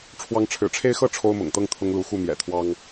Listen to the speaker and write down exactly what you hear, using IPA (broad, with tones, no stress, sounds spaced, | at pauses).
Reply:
ʈ͡ʂʰ w ɑ˨˦ ŋ ʈ͡ʂʰ ɻ̩˨˩ ʈ͡ʂʰ e˦ ɪ̯ x ɤ˥˨ ʈ͡ʂʰ o˦ ʊ̯ m ʊ̰˨˩ ŋ t̪ ɤ˥˨ ŋ t̪ʰ ʊ˦ ŋ l u˨˦ x u˥˨ m j ɛ̰˨˩ t̪ʰ w ɑ˦ ŋ